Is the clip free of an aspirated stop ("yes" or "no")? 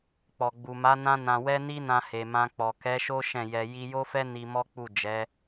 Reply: yes